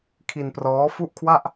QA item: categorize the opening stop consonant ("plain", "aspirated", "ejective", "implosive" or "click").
aspirated